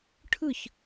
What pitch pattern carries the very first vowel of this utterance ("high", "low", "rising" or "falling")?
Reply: falling